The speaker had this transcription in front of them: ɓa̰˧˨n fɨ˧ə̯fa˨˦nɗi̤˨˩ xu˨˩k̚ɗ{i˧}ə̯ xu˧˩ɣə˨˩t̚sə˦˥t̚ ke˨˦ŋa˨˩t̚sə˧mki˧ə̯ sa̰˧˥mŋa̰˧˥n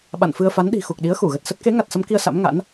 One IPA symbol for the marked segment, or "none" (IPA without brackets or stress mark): i˨˦